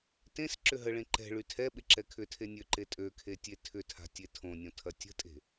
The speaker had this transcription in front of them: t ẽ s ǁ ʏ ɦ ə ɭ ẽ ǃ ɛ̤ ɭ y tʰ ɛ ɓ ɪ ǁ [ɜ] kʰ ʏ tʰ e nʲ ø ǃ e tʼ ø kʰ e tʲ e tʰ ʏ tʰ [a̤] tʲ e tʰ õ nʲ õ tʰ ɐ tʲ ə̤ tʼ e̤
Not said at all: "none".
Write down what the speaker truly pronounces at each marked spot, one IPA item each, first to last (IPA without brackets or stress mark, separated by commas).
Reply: ɛ, a̤